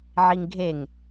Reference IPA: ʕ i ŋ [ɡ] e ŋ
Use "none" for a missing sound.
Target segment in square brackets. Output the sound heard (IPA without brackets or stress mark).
ɡʱ